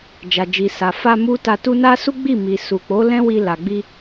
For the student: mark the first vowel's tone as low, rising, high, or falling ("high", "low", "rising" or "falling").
low